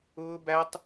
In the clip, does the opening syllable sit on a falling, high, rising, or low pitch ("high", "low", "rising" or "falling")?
high